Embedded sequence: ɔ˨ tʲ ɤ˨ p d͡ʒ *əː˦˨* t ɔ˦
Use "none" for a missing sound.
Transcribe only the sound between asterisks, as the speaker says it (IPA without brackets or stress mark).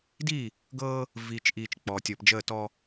əː˦˨